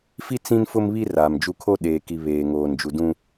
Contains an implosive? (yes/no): yes